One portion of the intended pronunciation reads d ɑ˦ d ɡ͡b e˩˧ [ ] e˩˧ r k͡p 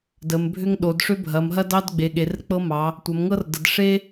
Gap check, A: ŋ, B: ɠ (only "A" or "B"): B